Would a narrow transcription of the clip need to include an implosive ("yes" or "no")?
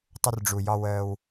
no